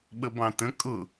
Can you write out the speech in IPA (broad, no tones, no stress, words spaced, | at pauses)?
ɓəbɑ̃tə̃ kʼʊ